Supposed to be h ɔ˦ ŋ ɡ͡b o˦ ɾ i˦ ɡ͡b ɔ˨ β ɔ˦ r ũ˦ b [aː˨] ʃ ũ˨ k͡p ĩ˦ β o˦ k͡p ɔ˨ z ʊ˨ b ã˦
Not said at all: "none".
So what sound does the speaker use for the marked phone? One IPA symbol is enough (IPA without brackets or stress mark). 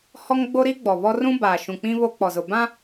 aː˨